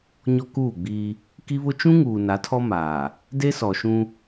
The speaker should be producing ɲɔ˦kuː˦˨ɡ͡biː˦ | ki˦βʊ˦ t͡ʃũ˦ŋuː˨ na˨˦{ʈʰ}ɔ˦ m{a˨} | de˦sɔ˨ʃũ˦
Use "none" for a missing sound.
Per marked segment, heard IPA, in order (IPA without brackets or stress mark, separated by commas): tʰ, aː˨